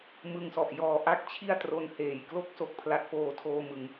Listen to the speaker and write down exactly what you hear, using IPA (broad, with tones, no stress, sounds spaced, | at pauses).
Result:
m ɯ˧ ŋ s ɔ˨˩ ʔ j ɔː˨˩ ʔ a˥˩ k̚ t͡ɕʰ i˥˩ a̯ t r o˦˥ n h eː˩˦ j k l o˥˩ k̚ s o˨˩ k̚ pʰ l a˦˥ t̚ f oː˧ tʰ oː˧ m ɯ˩˦ ŋ